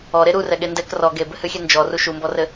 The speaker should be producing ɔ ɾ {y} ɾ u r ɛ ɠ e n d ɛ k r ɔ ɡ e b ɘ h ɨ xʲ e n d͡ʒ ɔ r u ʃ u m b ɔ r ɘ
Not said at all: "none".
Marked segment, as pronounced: e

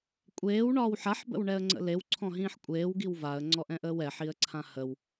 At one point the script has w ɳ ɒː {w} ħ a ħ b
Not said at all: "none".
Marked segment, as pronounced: w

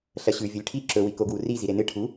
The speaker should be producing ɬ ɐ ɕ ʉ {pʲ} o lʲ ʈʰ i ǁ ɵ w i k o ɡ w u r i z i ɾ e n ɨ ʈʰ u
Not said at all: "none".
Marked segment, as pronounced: vʲ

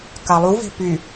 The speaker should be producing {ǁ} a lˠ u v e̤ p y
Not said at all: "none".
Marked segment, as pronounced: k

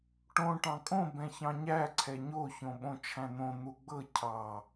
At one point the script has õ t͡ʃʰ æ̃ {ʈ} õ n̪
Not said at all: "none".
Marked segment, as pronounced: n̪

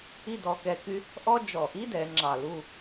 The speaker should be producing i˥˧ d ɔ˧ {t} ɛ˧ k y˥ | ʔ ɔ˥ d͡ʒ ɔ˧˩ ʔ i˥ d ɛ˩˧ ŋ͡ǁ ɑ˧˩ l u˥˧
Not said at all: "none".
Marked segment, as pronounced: k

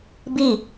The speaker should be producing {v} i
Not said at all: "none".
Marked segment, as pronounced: b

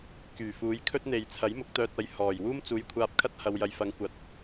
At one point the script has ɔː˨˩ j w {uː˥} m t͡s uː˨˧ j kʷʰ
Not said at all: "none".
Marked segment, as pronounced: uː˥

